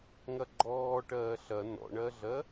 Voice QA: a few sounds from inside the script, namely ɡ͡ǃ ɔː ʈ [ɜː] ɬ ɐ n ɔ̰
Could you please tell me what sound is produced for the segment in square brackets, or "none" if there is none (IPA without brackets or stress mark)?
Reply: ɜː